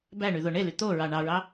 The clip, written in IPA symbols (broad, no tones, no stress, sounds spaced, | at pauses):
b æ ɳ y ð o ɳ e l y t̪ o ɹ ɑ ɳ ɑ ɹ ɑ